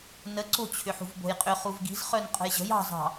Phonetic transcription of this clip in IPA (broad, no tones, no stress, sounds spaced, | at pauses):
n ə ǀ o̤ t͡ɕʰ ʏ ħ ṳ v b o̤ j qʼ ʏ χ u v ɡ i̤ z χ œ n qʼ ə̤ j ʑ ə̤ j ɑ̤ z ɑ̤